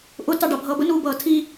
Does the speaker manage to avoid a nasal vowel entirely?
yes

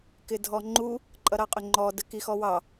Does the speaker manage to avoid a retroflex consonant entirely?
yes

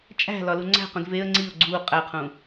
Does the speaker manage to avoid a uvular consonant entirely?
no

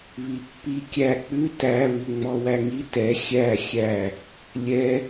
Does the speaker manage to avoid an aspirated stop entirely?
yes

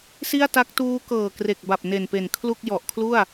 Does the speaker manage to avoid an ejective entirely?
yes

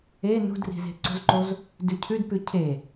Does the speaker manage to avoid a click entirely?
no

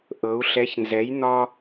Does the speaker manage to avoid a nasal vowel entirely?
yes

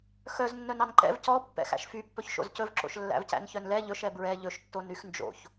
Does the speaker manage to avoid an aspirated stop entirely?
yes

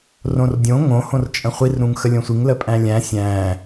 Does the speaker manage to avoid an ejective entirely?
no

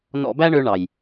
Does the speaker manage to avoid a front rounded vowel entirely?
no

